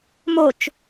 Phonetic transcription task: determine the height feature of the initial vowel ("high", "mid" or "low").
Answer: mid